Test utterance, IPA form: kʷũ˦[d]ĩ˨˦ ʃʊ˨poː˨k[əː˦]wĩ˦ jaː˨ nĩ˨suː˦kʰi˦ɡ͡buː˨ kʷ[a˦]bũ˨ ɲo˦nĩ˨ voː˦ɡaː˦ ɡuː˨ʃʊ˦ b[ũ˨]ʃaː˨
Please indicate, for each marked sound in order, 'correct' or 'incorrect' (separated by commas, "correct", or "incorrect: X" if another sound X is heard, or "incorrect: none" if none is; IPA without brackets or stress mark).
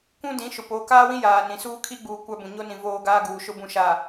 correct, incorrect: aː˦, correct, correct